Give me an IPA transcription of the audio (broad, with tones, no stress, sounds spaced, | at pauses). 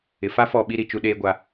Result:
ɪ˨ f a˦ f ɔ˦˨ ɓ i˦ ɾ i˨ t͡ʃ u˦ ɗ eː˦ ɡʷ a˦